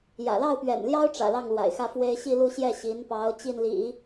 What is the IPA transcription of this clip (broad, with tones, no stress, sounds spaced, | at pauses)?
j ä̰˨˩ l ɑ˥˩ ʊ̯ p ɥ ɛ̰˨˩ n l j ɑ˥ ʊ̯ ʈ͡ʂ ä̰˨˩ l ɑ˥˩ ŋ l w a̰˨˩ ɪ̯ x ä˥˩ f w e˥ ɪ̯ ɕ i˥˧ l u˥˧ ɕ j ɛ˥˩ ɕ i˧˥ n p ɑ˧˥ ʊ̯ t͡ɕ i˥˩ n l ḭ˨˩˦